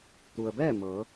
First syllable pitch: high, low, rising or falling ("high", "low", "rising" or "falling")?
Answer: low